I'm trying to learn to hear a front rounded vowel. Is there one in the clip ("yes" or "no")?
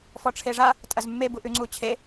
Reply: no